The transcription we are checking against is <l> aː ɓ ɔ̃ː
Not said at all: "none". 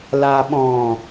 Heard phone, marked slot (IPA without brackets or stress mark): l